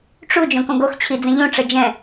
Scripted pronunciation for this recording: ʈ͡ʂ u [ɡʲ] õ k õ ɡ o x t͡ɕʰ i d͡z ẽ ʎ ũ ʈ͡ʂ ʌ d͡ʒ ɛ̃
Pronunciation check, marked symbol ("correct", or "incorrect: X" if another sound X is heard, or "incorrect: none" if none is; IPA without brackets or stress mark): incorrect: d͡ʒ